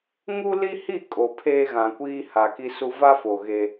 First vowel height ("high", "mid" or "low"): high